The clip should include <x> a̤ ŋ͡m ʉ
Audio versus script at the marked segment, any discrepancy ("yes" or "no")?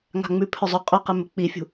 yes